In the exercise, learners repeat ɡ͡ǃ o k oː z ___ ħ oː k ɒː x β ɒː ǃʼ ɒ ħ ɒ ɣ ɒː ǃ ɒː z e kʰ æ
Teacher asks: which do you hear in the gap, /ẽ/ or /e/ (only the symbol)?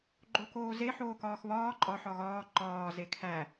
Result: e